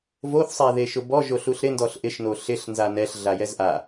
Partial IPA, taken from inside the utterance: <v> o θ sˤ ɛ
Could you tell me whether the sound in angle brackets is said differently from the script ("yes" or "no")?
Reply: no